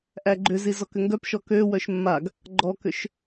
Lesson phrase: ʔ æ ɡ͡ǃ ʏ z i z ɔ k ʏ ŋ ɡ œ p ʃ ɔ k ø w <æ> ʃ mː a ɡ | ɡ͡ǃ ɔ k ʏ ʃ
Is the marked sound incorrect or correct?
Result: incorrect: œ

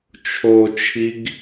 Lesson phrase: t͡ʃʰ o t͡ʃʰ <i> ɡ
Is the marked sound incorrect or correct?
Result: correct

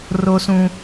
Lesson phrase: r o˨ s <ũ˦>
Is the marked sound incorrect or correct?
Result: incorrect: ũ˨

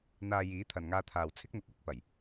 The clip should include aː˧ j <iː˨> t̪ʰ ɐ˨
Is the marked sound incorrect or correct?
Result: incorrect: iː˨˥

